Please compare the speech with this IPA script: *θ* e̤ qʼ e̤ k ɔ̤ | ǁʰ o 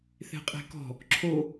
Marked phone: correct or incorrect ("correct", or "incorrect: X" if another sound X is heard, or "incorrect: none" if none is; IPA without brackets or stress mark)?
correct